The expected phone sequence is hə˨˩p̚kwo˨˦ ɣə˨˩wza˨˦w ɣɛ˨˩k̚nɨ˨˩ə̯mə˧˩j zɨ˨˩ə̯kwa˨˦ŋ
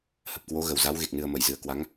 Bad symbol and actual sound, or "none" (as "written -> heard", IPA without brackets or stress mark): ɛ˨˩ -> e˨˩